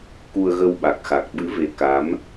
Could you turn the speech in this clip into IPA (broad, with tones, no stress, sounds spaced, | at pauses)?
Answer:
k u˧ ə̯ ɣ ə˧ w ɓ a˨˩ k̚ x a˨˩ k̚ ɓ ɨ˨˦ v e˨˦ k a˨˦ m